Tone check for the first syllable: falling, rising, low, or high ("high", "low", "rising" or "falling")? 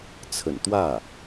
low